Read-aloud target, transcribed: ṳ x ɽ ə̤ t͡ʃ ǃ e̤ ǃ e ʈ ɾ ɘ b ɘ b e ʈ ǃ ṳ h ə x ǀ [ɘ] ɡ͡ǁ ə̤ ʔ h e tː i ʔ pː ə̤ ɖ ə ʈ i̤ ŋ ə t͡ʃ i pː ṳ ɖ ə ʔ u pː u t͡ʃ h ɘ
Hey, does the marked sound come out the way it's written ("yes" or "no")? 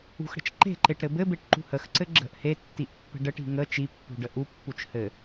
yes